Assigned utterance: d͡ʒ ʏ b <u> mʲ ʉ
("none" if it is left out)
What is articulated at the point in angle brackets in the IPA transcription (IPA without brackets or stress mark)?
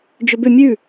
ʏ